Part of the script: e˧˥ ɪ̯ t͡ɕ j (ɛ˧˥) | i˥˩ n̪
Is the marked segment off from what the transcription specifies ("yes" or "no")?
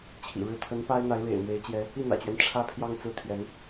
no